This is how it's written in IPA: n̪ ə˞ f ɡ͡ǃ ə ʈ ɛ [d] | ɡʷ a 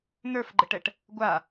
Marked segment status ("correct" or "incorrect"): incorrect